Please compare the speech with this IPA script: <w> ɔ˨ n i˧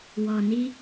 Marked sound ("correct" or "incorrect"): correct